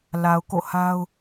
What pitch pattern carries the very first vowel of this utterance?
low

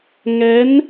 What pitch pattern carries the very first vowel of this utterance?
rising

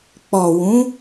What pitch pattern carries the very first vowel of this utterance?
low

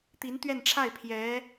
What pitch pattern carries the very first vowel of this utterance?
rising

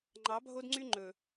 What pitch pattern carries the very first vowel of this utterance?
rising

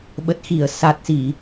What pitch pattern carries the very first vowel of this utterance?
low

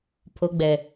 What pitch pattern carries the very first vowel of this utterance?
low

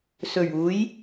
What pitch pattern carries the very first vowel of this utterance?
low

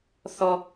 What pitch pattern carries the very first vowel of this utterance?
high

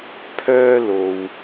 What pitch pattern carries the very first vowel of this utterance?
high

